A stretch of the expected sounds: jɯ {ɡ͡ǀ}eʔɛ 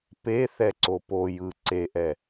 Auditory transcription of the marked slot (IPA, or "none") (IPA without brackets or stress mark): ǀ